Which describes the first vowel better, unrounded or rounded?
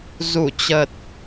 rounded